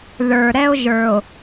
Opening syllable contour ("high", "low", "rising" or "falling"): low